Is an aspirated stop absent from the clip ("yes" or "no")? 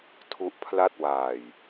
no